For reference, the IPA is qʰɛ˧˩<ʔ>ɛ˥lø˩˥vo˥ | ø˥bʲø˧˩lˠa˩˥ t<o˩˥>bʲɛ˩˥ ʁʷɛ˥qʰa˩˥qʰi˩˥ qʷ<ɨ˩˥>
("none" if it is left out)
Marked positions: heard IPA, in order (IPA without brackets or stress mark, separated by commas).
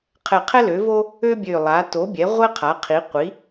qʰ, o˩˥, i˩˥